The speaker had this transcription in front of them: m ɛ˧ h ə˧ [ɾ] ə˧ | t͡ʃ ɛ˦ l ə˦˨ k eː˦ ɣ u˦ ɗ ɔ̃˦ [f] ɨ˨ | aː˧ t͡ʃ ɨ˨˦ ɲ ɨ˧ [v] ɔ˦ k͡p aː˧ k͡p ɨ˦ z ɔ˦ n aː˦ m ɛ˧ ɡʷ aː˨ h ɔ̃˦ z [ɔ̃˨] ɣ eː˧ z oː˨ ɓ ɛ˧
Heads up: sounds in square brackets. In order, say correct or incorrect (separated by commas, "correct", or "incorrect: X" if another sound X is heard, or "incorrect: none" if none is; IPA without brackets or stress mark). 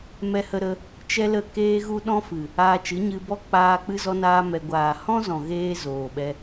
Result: correct, correct, incorrect: b, correct